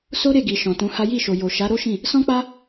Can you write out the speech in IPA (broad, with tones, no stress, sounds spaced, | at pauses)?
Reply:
s o˦ ɾ e˦˨ ɡ i˨ ʃ ɔ̃˨ t ũ˨˦ h a˦ j i˦˨ ʃ o˨ j o˨ ʃ a˨˦ ɾ o˦ ʃ ĩ˦˨ | s ɔ̃˦ k͡p a˦